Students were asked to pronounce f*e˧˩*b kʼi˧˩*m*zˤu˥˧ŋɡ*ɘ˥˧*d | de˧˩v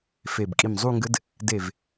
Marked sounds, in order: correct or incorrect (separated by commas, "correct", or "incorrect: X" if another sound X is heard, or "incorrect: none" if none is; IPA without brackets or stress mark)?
correct, correct, incorrect: ɘ˦˥